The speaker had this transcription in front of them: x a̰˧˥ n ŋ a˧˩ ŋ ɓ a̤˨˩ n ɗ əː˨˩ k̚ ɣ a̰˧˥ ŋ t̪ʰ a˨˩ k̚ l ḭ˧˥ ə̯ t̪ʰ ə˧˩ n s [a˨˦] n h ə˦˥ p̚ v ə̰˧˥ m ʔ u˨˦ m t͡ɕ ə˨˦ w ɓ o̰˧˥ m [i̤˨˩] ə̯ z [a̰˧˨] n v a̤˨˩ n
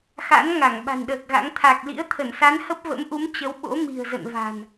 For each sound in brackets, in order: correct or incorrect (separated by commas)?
correct, correct, incorrect